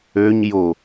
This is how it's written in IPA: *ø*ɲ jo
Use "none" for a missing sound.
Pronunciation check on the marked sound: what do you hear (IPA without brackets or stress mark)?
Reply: ø